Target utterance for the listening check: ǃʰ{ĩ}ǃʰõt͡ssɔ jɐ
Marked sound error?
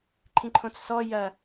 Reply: no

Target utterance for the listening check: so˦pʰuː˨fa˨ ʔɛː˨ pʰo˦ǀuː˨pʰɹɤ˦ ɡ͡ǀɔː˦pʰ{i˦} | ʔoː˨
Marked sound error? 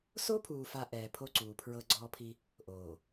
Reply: no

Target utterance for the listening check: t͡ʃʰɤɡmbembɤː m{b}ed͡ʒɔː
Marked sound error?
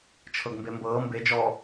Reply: no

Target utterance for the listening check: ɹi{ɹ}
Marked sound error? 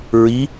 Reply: yes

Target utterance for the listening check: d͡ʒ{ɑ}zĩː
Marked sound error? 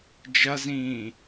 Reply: yes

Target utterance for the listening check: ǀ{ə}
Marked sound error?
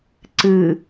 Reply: yes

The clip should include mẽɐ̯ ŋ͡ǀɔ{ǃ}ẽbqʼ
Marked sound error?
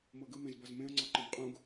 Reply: no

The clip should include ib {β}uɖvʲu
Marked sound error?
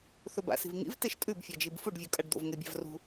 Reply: yes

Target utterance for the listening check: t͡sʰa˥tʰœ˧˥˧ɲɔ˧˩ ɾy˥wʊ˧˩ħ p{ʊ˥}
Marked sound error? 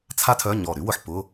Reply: yes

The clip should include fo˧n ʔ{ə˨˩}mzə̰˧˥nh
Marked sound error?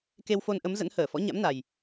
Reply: yes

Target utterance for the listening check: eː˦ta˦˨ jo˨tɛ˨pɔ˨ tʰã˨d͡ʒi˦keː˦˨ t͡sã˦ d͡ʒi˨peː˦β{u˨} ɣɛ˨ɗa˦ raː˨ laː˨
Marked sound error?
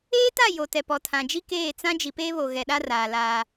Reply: yes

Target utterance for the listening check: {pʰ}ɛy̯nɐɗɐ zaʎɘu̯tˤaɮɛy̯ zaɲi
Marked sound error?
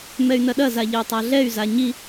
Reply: yes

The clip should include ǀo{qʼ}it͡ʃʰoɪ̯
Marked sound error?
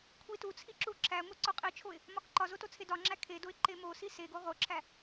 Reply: no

